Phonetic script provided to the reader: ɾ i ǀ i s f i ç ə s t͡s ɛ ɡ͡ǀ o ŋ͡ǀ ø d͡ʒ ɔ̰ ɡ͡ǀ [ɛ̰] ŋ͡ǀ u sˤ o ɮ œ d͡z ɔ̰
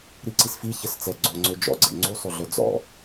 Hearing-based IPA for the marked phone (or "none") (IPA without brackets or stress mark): ɛ̰